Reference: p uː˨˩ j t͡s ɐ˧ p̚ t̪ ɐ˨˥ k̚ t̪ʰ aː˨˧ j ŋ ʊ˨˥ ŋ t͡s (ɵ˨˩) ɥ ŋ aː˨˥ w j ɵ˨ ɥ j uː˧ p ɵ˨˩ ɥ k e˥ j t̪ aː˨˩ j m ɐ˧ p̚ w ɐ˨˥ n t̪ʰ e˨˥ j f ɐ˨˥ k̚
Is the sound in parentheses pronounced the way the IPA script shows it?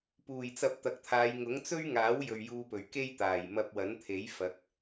no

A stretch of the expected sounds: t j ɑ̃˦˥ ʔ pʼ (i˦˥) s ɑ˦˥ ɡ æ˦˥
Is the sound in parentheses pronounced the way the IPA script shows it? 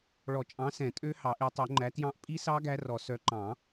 yes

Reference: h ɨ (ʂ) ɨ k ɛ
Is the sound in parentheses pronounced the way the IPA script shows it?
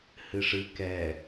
yes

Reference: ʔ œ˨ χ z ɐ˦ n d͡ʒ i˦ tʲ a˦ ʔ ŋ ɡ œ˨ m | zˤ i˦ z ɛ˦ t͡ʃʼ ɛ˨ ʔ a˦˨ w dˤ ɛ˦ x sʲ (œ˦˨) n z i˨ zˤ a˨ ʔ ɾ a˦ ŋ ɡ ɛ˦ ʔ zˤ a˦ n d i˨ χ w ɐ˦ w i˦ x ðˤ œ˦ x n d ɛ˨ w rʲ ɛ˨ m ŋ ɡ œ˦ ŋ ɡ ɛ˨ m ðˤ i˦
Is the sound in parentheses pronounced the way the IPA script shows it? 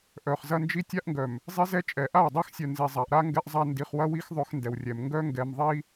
no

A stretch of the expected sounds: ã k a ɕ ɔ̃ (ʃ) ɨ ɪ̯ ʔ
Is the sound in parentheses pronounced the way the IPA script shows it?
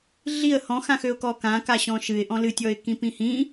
yes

